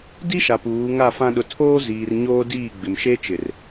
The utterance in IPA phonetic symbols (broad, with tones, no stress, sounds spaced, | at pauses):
d i˦ ʃ a˨ p uː˨˦ ŋ a˦˨ f ã˦ ɗ ʊ˨ tʰ oː˦ z iː˨ r ɲ oː˦ d iː˦˨ ɡ͡b ɪ˨ m ʃ e˦ t͡ʃ ɪ˨ r